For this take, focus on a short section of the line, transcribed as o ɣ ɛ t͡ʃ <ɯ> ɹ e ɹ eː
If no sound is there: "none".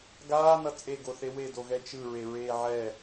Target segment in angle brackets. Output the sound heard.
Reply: ɯ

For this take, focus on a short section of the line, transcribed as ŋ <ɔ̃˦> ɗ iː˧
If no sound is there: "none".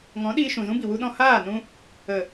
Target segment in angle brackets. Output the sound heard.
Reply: ɔ̃˨˦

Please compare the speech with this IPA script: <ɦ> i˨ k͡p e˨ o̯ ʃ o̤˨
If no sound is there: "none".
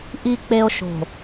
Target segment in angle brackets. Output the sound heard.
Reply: ʔ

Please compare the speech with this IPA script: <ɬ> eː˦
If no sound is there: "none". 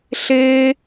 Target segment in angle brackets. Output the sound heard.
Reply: ɬ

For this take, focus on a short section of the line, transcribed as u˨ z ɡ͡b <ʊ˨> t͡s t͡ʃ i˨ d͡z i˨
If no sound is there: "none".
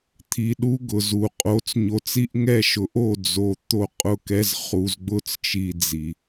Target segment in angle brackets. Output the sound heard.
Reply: ʊ˦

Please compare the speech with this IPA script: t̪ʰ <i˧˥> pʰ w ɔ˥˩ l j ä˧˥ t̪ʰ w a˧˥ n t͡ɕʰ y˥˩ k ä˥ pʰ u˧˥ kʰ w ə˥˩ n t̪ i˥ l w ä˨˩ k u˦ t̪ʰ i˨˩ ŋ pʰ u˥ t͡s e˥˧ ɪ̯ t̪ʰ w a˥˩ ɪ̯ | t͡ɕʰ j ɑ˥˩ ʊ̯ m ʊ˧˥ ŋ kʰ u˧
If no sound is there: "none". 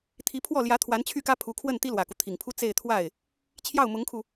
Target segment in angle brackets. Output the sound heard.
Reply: i˧˥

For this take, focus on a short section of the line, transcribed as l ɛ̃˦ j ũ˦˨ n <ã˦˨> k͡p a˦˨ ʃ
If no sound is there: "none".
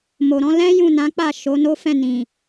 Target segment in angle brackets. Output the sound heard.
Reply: ã˨˦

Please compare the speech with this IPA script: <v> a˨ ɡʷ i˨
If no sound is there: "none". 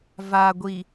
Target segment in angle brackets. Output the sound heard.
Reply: v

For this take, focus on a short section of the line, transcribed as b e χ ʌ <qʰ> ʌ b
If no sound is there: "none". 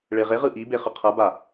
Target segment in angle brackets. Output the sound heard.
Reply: qʰ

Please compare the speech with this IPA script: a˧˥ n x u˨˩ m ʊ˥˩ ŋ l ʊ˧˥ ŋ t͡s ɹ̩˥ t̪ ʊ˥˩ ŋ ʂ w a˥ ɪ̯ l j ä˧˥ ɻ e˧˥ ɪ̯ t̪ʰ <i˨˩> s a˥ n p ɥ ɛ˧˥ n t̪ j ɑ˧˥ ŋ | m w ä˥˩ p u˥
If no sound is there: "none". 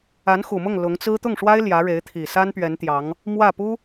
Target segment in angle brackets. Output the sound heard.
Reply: i˨˩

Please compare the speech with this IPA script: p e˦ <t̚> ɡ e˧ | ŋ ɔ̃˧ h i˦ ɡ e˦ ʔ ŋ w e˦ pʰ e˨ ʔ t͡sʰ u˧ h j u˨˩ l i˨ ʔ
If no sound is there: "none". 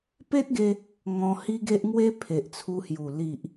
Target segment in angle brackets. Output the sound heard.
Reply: t̚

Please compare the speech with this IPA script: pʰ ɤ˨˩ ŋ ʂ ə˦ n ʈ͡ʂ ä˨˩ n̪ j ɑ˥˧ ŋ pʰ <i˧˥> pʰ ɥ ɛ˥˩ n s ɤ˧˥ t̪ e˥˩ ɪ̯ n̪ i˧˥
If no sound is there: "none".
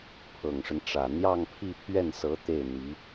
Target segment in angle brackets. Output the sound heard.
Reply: i˥˧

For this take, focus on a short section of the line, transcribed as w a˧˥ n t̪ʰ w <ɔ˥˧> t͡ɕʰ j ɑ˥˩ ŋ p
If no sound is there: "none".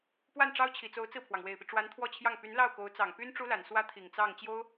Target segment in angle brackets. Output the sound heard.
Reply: ɔ˥˧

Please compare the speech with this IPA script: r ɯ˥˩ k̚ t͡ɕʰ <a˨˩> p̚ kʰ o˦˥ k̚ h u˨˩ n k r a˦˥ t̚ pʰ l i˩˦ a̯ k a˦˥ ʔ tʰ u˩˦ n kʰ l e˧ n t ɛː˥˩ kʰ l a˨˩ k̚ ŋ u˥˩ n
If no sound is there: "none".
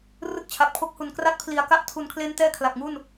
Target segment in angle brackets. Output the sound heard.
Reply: a˨˩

